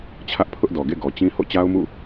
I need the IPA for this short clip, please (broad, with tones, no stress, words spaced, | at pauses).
t͡ɕʰä˦ʔ pʰʊ˦ʔdɔ˨ɡḛ˦˨ ɡɔ˨t͡ɕĩ˦ ho̰˦˨t͡ɕa˦ʊ̯mṵ˦˨